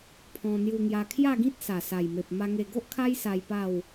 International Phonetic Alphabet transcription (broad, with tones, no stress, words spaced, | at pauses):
pʰɔ̃˧ n̪ju˧ŋja˧ kʰja˥˧ɡĩ˦t̚ sa˨˩sa˨˩jme˨p̚ ma˧ŋe˧ɡo˦ʔkʰa˦j sa˧jpa˥˧w